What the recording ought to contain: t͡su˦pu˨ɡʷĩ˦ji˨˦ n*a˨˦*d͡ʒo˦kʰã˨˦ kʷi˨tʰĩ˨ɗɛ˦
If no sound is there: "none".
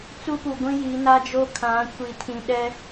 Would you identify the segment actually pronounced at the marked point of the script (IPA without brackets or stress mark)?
a˦